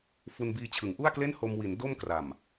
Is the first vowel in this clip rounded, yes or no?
yes